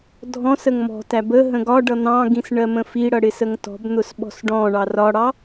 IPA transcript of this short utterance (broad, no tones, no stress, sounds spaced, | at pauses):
dʱ ɔ̃ s ə ŋ m ɔ̤ t æ b ə ɦ ə̃ ɡ ɒ ɖ ʌ n̪ ɑ̃ ɡ ĩ s ɳ ɜ m ə̃ f i ɽ ʌ ɽ ɪ s ə ŋ t ɔ̤ b n̪ ʊ s ɓ ɔ̤ s ɖ ɔ̃ ɳ ɑ r ɒ ɽ ɑ